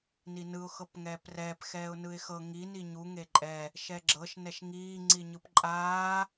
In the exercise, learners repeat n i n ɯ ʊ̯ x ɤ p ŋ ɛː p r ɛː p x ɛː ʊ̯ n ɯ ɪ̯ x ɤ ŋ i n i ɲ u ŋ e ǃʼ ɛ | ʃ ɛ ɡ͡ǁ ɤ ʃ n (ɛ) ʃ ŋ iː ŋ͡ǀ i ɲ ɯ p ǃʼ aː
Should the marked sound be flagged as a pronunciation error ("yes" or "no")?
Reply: no